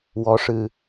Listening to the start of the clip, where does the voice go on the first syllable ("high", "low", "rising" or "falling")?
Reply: rising